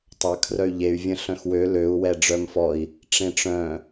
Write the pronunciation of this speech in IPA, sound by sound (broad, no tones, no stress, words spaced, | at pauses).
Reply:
tˤɐ kʰrœy̯ʎey̯ vʲə̃ɬœ̃xwø løu̯ wɛɖ͡ʐœmfɔi̯ | ʈ͡ʂẽʈ͡ʂœ̃